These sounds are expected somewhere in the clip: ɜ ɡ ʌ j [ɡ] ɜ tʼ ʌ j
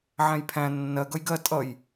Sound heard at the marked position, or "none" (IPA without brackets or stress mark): ɡ